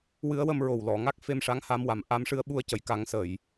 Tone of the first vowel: rising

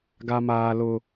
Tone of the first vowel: low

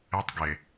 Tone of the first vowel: high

